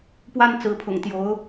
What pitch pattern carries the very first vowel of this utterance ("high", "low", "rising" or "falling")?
high